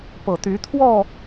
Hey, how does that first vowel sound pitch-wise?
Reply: low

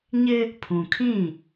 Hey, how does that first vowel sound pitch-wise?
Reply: high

